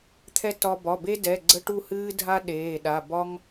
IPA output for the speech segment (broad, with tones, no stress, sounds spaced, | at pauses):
t̪ʰ ɛ˦ t ɒ˦ b ɒ˩˧˩ b e˦ d ɛ˩˧˩ ɡ͡ǀ ə˦ ʈ u˦˨ h ɨː˦ dʱ a˦ ɗ eː˩˧˩ ɗ a˩˧˩ b ɒ˦ ŋ